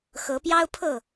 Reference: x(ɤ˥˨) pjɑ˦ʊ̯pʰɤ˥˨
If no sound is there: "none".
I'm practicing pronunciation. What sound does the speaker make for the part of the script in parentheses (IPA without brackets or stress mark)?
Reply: ɤ˨˦